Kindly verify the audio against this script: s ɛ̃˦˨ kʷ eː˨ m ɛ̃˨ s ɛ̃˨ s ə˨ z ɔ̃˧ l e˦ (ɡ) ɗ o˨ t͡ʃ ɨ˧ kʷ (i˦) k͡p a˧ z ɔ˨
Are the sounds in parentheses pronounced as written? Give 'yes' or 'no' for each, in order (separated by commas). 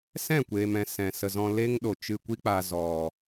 no, yes